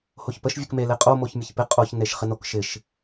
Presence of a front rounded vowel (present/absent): absent